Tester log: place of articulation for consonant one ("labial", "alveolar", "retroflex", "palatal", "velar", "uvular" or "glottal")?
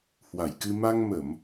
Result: glottal